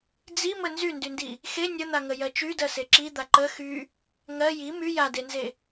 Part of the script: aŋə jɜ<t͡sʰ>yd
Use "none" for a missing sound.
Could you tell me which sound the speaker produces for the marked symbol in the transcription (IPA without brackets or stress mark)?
t͡ʃ